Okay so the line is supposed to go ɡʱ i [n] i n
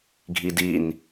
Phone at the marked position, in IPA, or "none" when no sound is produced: d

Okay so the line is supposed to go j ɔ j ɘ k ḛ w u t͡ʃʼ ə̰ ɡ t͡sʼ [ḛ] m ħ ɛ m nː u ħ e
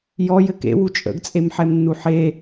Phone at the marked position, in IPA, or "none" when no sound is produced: e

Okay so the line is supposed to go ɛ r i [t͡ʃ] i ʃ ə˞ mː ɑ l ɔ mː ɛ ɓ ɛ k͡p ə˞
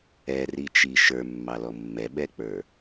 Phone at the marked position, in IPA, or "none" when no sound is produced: t͡ʃ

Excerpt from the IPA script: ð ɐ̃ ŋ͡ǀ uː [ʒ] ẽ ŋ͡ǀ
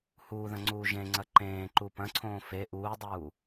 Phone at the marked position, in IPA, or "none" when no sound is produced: ʒ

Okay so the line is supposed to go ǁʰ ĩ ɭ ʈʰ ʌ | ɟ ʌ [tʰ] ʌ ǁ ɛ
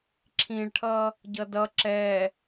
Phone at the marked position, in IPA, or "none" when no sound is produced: d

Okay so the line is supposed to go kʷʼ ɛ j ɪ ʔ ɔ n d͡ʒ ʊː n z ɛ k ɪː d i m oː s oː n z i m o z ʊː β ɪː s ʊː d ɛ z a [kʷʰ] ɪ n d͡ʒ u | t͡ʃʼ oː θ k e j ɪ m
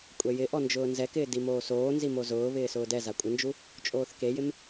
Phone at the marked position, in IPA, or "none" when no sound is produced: kʷʼ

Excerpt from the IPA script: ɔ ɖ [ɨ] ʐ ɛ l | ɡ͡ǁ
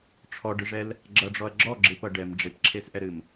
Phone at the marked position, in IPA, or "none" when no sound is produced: ɨ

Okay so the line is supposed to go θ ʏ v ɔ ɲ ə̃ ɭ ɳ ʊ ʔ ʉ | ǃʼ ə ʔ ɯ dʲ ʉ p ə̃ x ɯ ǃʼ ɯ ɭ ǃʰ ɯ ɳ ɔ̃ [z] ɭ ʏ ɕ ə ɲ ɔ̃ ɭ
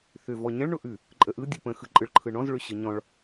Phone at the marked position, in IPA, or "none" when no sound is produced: z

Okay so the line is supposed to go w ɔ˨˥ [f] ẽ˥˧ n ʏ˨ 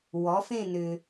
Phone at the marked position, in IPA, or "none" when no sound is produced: f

